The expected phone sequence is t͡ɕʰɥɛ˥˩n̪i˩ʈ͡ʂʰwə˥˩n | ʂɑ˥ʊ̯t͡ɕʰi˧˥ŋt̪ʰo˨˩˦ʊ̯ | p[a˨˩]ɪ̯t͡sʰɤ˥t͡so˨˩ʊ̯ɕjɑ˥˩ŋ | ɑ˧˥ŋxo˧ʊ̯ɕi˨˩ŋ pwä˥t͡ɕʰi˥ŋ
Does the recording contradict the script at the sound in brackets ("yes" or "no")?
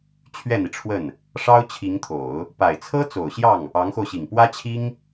no